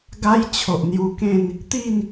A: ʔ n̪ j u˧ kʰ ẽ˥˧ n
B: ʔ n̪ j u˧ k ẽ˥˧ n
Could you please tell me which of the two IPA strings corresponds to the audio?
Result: B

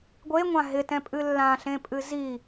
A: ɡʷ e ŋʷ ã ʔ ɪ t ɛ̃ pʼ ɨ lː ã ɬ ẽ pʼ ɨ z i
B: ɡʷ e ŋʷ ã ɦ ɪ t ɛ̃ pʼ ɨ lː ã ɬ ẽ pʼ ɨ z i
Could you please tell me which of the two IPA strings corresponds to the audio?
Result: B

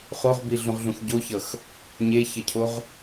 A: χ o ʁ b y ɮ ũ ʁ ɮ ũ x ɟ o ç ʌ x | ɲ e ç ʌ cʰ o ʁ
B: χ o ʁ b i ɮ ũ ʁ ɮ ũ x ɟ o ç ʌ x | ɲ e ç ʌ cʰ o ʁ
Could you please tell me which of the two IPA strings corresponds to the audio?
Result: B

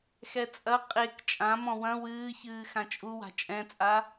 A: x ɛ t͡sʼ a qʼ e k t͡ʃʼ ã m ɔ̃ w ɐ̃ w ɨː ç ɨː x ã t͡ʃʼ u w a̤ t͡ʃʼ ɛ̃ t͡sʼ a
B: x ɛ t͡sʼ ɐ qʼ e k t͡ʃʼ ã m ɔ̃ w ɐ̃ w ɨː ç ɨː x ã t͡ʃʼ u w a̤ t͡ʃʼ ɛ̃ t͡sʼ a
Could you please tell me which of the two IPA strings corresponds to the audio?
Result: B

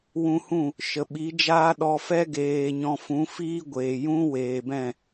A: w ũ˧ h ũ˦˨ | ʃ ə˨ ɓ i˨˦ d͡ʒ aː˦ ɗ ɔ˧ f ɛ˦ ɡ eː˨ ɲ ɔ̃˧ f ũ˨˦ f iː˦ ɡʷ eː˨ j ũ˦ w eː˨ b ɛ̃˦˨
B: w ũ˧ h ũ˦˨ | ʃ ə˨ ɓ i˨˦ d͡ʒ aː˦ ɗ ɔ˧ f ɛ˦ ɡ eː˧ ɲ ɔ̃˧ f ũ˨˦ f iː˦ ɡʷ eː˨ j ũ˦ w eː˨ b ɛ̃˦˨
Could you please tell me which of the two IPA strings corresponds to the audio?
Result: A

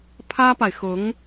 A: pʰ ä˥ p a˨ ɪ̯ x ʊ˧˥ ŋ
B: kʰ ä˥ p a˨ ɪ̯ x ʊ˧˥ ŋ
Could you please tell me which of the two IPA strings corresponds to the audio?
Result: A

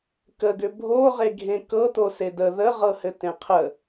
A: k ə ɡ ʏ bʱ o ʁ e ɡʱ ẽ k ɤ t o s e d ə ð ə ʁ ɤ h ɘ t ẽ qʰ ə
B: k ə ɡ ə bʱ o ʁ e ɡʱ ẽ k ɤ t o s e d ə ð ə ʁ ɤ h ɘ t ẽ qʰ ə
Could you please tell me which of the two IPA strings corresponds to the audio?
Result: A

